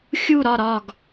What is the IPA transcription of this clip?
xʲ u˦˨ ɾ ɒ˦˨ ɾ ɒ˦˨ ɡ

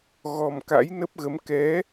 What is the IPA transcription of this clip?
ɣ ɔ˨˩ m k a̰˧˥ j n ə˦˥ p̚ ɣ ə˨˦ m k ɛ˨˦

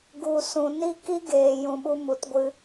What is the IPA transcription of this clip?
ɡ u˨ s ũ˨ n i˦ k i˦ ɡ eː˨ j ũ˨ ɓ u˧ m u˨ t ɡʷ ɨ˧

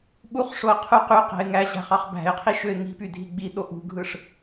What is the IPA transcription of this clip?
ɓ u χ ʂ o ə̯ qʰ u q y q æ̤ ɪ̯ ŋ æ ʑ æ̤ χ ɑ χ b æ̤ ɪ̯ qʰ i ʃ ø ɪ̯ ŋ i̤ p y dʱ i ɡ͡b i ɗ o ʔ ṳ ɡʱ ɯ ʂ

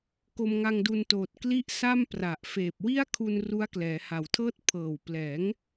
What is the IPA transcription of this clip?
k o˧ m ŋ a˧ ŋ d u˧ n t oː˨˩ t̚ k l i˥˩ ʔ s a˥˩ m p r a˨˩ ʔ f eː˨˩ p̚ w i˥˩ a̯ kʰ u˧ n r u˦˥ a̯ k l ɛː˩˦ h a˨˩ w tʰ ɤː˥˩ t̚ pʰ ɤː˨˩ w p l ɛː˩˦ ŋ

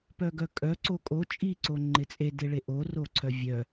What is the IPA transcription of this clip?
p œ ɡ œ kʼ œ ǀ o kʼ o t͡ʃʼ i ǀ o ŋ͡ǃ ɪ t͡sʼ e d e ɭ e ʔ o r o ǀʰ œ vʲ œ

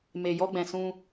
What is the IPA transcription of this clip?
m e˨ j ɔ˧ ɡ͡b ɛ̃˨ s ũ˧

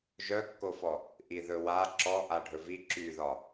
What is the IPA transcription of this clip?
ʒ œ kː o f ɔ | ʔ i ð ɵ w a ǁ ɔ ʔ a ɖʱ ɵ v i ǁ y ð ɒ

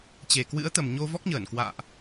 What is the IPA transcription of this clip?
t͡ɕ e˨˩ k w ɨ̰˧˥ ə̯ t̪ ə˨˩ m ɲ o˧ v ɔ˦˥ k̚ ɲ əː˧˩ n k w a̰ː˧˨ ʔ

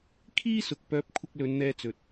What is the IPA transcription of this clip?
kʰ iː˥ s ʊ˨ k̚ p œː˨˥ p̚ kʷʰ ɪ˨ k̚ l ɵ˨˧ n n̪ ɛː˧ t͡s ɵ˨ t̚

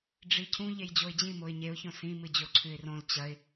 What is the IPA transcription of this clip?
ɖ͡ʐ i cʰ ũ ʎ e j d͡ʑ o ɪ̯ d͡ʑ ĩ m o ɪ̯ ɲ e ʊ̯ ç õ s ĩ m ɨ d͡ʑ o ǀʰ ʉ ɪ̯ r õ l t͡ɕ ɐ ɪ̯

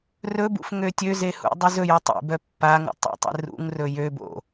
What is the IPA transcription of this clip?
r ɵ b ṵ f ŋ ø tʲ ø z e h ṵ dˤ ʉ z ɵ j u tˤ ḛ b œ pː a ŋ ṵ tˤ ḛ tˤ ḛ r ṵ ŋ r ɵ j ø b o̰

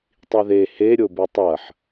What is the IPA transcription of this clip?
tˤ i ð e h e ɾʲ o b ʉ tˤ ɐ ħ

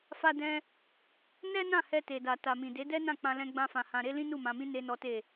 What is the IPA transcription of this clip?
f a˧ d ɛ̃˧ | n ɛ˦ n ã˦˨ h ɛ˧ t e˨ d a˨ t a˨ m ĩ˨ d e˨˦ d ɛ˦ n ã˦˨ k͡p ã˧ l ɛ̃˦ ɡ͡b ã˦ f ã˧ h ã˧ ɾ e˦ l ĩ˦ n u˦˨ m ã˧ m ĩ˦ n e˦ n ɔ˦ t e˦˨

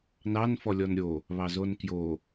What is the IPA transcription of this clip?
n ɑ n f ɔ lʲ ɔ n ɾʲ o | β ɑ z o n k j o

